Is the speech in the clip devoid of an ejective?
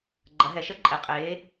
no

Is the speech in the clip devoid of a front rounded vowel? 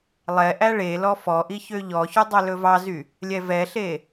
no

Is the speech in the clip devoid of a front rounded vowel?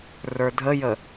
yes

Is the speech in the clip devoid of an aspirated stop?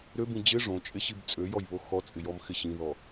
yes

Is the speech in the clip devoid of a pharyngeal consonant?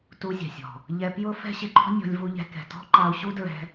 yes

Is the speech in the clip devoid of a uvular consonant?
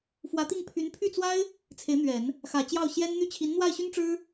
yes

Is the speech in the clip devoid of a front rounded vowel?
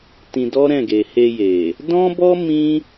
yes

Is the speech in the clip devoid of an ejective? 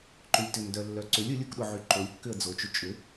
no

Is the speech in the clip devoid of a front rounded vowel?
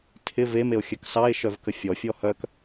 no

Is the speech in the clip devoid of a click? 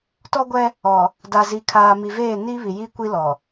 yes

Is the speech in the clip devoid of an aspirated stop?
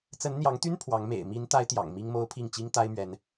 no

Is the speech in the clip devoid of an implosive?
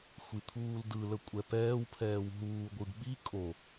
no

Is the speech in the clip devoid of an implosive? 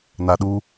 no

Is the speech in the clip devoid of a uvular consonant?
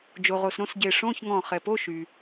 no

